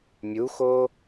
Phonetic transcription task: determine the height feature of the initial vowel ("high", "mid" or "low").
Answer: high